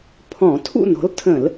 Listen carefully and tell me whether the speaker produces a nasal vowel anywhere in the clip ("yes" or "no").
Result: yes